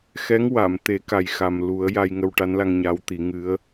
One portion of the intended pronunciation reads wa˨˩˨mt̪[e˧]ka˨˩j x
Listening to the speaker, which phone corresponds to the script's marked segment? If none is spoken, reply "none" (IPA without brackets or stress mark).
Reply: e˨˩˦